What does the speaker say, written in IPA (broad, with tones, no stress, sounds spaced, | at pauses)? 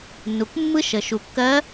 nː u˩ k mː ɯ˥ ʃ ə˩ ʃ u˩ kː ɜ˧˥